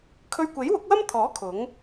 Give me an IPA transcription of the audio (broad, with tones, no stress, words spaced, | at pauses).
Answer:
kʰɵ˧ɥkʷe˨˥jwʊ˨˥k̚wɐ˥m t̪ʰɔː˨˥ kʰʊ˨˥ŋ